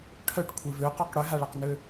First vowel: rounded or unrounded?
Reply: rounded